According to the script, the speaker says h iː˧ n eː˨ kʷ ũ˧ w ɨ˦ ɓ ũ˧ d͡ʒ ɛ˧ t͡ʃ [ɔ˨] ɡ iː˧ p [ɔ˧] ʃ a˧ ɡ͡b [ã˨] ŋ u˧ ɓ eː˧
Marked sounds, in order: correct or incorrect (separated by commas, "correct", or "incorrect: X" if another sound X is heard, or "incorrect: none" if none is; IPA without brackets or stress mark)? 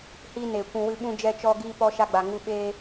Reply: incorrect: ɔ˧, correct, incorrect: a˨